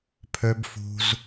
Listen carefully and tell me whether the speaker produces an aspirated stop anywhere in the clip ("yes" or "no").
yes